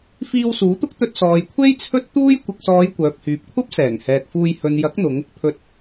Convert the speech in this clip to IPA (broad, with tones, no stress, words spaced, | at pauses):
fiː˧wsuː˨˥t̪ʊ˥k̚t̪ɵ˧t̚ sɔː˨jkʷʰe˥j t͡sʰɵ˥t̚ t̪uː˥j kʷɪ˨k̚sɔː˨˧j kʷœː˨p̚hyː˨p̚kʷʰɐ˥p̚sɛː˨˩ŋ hɛː˨k̚fuː˧j hɵ˨njɐ˨˥k̚n̪ʊ˨˧ŋ | pʰɵ˨t̚